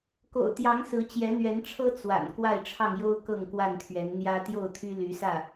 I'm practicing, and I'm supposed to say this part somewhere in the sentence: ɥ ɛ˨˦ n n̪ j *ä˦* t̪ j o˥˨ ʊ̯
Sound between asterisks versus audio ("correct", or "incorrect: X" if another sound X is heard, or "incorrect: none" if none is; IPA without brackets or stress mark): correct